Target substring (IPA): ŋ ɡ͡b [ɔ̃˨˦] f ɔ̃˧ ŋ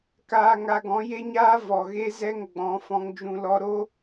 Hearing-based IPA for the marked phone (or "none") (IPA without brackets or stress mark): ɔ̃˨˦